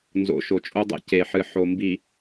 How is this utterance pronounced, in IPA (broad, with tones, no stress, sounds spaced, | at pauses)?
n z o̰˨ ʃ o˨ t͡ʃʼ o˦ dˤ ɛ̰˦ c e˨ ħ ɨ˨ ħ o˨ m b i˨